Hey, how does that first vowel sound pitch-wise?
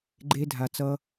high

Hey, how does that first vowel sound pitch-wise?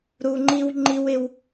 low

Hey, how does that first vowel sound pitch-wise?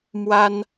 high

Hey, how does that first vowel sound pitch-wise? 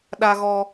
high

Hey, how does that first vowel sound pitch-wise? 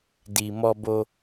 low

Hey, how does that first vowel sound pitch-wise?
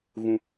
low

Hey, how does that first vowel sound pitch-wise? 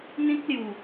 high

